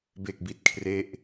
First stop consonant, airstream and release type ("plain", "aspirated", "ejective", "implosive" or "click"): plain